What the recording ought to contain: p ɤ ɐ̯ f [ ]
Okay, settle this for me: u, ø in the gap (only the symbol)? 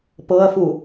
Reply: u